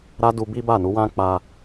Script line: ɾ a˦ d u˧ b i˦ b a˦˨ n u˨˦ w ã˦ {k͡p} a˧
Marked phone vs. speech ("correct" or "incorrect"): correct